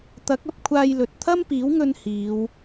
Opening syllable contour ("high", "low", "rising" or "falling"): rising